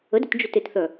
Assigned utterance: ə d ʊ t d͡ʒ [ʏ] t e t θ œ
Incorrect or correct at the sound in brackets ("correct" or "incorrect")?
correct